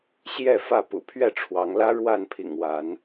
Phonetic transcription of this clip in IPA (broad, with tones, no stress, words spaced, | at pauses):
ɕjɛ˥˨fä˥˨ pṵ˨˩pʰɥɛ˥˨ ʈ͡ʂʰwɑ˨˦ŋ lä˦ ɻwa˥˨npʰḭ˨˩ŋ wa˨˦n